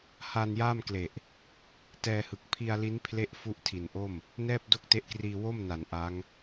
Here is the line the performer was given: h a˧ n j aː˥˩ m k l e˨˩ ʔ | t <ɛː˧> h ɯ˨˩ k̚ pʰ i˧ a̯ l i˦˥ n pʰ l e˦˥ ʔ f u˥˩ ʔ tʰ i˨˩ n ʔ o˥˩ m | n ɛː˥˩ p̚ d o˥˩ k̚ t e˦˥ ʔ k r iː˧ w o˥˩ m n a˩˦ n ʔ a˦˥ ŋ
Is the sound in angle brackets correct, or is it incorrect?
correct